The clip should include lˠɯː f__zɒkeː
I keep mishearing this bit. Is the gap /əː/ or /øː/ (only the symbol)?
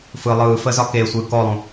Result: əː